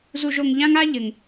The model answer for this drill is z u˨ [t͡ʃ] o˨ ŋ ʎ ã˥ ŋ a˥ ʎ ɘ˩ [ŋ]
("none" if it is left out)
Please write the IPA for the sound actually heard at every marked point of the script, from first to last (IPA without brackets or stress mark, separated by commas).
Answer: ʒ, ŋ